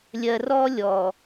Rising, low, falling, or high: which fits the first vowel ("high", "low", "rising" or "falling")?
low